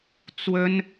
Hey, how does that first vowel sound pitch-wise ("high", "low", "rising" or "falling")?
high